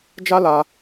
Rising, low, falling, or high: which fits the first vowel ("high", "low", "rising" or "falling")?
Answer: high